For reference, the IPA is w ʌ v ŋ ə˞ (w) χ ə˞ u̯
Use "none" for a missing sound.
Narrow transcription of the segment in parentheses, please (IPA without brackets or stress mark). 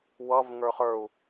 none